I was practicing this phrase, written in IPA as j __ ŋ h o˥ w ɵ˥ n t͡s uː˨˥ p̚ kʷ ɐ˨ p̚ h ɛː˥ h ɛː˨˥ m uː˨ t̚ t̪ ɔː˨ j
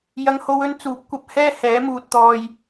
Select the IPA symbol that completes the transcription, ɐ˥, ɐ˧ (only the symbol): ɐ˥